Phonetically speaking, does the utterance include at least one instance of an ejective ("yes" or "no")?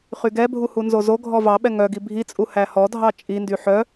yes